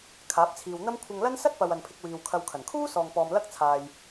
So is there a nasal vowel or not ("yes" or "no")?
no